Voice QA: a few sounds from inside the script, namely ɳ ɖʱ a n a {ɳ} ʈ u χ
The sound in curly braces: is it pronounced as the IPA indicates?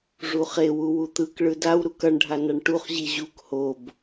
yes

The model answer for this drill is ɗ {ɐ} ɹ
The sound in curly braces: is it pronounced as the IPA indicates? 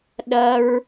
yes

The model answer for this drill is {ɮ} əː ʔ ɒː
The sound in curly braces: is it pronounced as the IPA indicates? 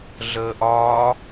yes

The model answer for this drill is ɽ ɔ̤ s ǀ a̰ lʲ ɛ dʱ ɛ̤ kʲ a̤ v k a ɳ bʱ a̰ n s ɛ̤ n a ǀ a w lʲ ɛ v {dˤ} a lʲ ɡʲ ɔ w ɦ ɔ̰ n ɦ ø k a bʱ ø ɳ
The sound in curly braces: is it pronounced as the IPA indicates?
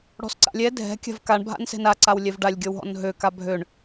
no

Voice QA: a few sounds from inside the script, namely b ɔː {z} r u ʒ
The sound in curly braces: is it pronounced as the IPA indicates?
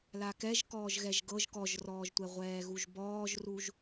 no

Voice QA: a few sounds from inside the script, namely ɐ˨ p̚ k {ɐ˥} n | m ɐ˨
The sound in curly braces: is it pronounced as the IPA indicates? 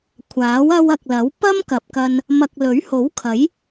no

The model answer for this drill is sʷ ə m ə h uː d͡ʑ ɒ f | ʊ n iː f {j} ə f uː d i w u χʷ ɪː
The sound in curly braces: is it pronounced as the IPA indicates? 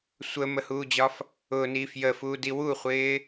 yes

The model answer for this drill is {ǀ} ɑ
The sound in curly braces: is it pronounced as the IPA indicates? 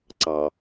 yes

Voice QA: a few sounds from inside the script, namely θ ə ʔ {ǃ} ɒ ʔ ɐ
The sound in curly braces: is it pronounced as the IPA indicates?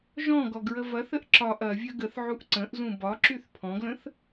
no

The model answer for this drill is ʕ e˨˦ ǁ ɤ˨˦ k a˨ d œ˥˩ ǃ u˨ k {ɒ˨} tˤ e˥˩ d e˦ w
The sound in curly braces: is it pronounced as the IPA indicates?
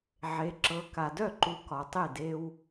yes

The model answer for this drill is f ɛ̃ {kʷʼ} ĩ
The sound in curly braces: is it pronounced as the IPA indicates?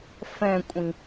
yes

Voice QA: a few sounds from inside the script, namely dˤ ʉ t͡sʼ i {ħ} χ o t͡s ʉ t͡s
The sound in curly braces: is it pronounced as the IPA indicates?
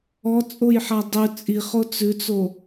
no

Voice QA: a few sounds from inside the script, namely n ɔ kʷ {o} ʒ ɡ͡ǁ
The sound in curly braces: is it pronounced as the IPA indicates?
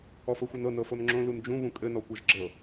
no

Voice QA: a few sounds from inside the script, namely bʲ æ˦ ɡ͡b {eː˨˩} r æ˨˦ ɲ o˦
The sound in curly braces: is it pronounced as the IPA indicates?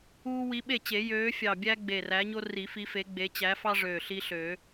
no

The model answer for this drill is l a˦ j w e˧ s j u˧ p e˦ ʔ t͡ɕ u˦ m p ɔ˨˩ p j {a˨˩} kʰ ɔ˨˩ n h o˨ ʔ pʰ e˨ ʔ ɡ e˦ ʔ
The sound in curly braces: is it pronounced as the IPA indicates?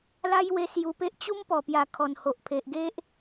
yes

